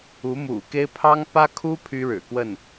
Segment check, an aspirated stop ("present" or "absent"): present